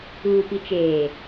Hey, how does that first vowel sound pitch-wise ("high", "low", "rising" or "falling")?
low